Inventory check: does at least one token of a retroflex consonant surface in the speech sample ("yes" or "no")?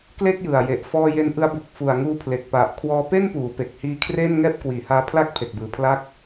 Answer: no